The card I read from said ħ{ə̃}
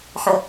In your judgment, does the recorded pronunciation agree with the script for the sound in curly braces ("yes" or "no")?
yes